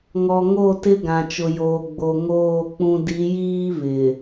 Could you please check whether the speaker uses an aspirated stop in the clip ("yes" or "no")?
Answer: no